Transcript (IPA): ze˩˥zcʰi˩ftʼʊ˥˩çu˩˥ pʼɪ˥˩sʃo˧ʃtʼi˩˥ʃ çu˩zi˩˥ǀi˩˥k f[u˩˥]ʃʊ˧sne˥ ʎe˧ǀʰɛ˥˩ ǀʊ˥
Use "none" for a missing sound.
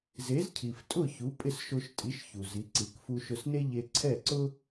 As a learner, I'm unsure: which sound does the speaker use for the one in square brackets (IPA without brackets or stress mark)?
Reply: u˧